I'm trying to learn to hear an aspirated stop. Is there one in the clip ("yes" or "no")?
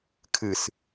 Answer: yes